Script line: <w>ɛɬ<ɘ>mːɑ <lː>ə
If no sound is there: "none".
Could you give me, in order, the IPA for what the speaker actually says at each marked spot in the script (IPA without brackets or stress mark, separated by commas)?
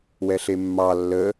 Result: w, e, lː